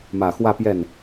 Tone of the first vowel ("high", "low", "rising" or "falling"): low